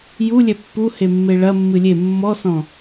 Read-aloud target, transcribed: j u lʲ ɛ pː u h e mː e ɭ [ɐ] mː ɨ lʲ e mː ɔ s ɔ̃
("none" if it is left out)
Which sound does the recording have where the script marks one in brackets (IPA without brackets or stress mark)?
ɐ